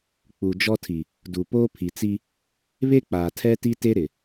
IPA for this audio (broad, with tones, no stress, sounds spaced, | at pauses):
k͡p u˨ d͡ʒ ɔ˦ tʰ i˨ | d u˨ p oː˦ pʰ i˨ t͡s i˦ | β e˦ k͡p aː˨ tʰ ɛ˦ t i˦ t e˦ ɾ ɪ˨